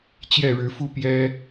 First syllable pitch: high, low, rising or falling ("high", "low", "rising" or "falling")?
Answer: falling